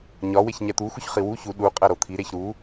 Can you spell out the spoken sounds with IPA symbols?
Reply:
ɲɒ weçɲæt̪u xuçχiwu çu ɗu qʼæɾot̪ʰi ɾeçɾu

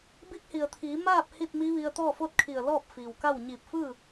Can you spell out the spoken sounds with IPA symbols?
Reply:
bi˧˥k̚hi˩ə̯t̪ʰiː˩˧ maː˥˨p̚ hi˥˨t̚mi˧˥ʋi˧ə̯ t̪ɔː˥˨fo˥˨t̚kʰi˧˩ə̯ lɔː˥˨p̚fiː˩wka˥˨w ɲiː˧˩p̚fɯː˥˨

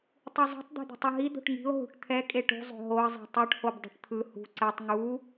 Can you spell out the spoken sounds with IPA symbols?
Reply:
tˤuzˤo̤tˤ d̪e̤d̪ṳtˤɯɦi d̪o̤ʈŋi̤ʊ̯ ɦṳʈt̪ʰɛ kʼeʈṳ zˤo̤ɦoə̯ zˤɛ̤tˤuʈ hobdˤo̤ʈt̪ʰɯ hṳ ǀɛtˤ ŋu

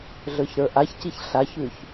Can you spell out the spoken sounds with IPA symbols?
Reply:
ɮə˞çɾə˞ʔaçciç ɬaçʉç

